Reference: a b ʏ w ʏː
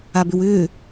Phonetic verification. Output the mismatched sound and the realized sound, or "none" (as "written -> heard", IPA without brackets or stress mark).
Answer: none